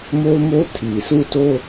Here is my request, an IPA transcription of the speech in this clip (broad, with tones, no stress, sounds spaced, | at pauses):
m o˦ ʊ̯ m o˦ tʰ i˨ s u˦˨ t o˦